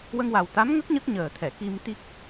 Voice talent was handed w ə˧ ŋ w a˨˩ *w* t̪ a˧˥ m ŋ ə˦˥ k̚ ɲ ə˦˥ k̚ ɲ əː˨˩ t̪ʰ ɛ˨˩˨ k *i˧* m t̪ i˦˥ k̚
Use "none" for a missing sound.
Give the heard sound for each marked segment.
w, i˧

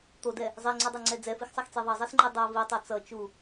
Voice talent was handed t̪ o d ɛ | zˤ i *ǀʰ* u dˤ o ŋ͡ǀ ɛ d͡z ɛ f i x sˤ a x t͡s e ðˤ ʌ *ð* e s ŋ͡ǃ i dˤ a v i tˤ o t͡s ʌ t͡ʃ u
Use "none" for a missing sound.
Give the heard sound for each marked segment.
ŋ͡ǀ, zˤ

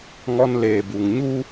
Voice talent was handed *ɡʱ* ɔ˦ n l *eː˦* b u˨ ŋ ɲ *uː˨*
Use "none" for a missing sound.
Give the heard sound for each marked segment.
ŋ, eː˨, uː˦

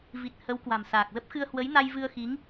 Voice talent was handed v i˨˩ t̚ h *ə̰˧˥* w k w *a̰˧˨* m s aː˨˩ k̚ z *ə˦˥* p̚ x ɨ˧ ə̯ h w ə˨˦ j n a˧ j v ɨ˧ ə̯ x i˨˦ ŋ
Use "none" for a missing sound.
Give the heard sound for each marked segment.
ə˨˦, a̤˨˩, ə˦˥

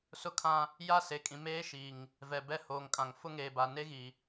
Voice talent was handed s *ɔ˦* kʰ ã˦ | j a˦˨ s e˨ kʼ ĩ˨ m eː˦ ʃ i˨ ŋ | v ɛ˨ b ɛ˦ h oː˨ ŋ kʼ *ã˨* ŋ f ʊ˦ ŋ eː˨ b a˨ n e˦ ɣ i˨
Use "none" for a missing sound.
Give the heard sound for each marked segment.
ʊ˦, ã˨

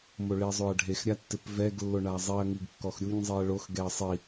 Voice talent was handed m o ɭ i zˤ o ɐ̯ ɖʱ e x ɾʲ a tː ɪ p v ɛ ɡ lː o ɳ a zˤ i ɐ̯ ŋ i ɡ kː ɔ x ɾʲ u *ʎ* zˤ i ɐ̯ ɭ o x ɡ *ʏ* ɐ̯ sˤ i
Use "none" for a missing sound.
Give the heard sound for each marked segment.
ɲ, ɛ

